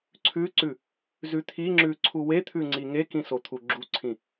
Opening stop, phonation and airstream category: click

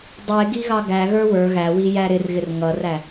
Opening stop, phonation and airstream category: plain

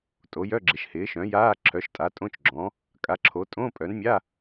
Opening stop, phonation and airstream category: ejective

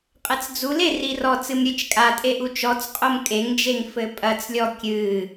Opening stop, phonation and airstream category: ejective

